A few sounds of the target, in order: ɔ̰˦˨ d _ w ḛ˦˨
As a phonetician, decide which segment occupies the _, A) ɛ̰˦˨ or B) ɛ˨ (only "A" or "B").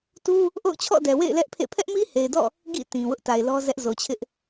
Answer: B